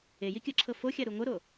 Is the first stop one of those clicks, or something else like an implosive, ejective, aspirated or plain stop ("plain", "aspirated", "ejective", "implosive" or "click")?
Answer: plain